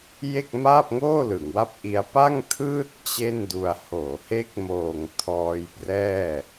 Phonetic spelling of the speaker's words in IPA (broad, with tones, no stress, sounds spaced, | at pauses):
j e˥˩ k̚ m aː˥˩ p̚ ŋ oː˥˩ l ɯ˩˦ ŋ w a˥˩ p̚ ʔ i˦˥ a̯ p a˥˩ ŋ tʰ ɯː˥˩ t̚ t͡ɕ e˥˩ n d u˧ a̯ h oː˩˦ h e˦˥ k̚ m oː˨˩ ŋ tʰ ɔː˧ j p r ɛː˥˩